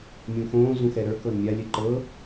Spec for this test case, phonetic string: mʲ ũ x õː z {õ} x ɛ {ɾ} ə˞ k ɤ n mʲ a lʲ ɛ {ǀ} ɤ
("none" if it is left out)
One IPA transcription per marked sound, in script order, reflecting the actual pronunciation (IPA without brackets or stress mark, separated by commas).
ũ, ɾ, ǃ